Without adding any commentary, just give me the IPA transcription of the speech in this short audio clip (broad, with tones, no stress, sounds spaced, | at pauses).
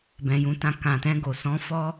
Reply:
b ɛ̃˨ j ũ˧ t ã˧ k ã˨ t ɛ̃˧ ɡ o˨ s ɔ̃˨˦ f ɔ˦